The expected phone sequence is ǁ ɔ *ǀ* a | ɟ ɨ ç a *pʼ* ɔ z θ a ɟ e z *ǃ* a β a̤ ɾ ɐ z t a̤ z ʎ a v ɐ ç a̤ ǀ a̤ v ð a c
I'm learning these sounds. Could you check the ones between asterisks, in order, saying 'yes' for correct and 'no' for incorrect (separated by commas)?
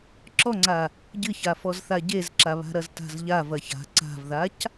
no, no, no